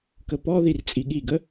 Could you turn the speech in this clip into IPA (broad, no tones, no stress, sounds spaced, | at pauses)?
k ə p ɔ ð i r t͡sʼ i ɠ i ɡ ə